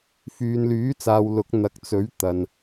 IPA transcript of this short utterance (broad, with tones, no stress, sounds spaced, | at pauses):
f yː˨ n l yː˨˥ t͡s aː˨ w l ʊ˨˥ k̚ n̪ ɐ˨˥ k̚ t͡s ɵ˨˥ ɥ t̪ ɐ˨ n